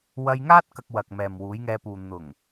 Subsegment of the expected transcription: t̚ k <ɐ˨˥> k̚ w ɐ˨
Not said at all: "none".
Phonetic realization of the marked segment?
ɐ˧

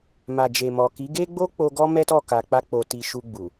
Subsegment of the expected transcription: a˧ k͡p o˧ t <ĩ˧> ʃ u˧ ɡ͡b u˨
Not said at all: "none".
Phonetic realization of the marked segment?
i˧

